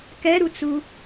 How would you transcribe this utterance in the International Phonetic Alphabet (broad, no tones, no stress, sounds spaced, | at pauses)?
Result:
k ɛ ɾ u t͡s u